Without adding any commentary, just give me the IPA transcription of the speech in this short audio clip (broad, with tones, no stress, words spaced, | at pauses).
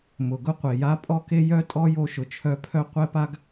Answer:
mʊ˩ɡʊ˥qʷe˩ja˥ pʼɔ˥ke˥ jœ˥ tʼɔ˥jo˧ʃʊ˩t͡ʃʰœ˧ pʰœ˥ qʷɛ˥pa˥ɡ